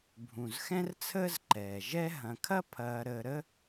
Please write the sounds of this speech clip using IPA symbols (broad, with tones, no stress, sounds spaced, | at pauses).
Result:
bʱ ũ˩ z x ɛ̃˥ r t͡sʰ əː˥ z ǃ ɛː˩ ʒ ɛ˥ ɦ ɐ̃˨ kʰ ɐ˥ pʰ ɐː˨ ɾ əː˨ ɾ ə˦